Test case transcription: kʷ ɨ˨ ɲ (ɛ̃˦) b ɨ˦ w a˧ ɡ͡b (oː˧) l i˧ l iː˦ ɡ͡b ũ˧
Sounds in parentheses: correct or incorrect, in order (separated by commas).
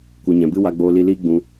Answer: incorrect, correct